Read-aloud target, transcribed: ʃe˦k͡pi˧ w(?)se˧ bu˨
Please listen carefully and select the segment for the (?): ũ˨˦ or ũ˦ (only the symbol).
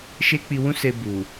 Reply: ũ˦